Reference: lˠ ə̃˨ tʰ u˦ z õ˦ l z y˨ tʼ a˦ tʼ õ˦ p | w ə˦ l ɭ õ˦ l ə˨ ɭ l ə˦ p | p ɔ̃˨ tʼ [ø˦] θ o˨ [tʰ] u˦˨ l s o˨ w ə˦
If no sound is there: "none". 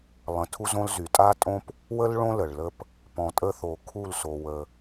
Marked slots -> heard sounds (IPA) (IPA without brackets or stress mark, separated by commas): ə˦, kʰ